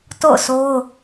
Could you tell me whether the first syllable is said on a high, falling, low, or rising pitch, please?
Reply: falling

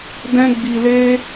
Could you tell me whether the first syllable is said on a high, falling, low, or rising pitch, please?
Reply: high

